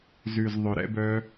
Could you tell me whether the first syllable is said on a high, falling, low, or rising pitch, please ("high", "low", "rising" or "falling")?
low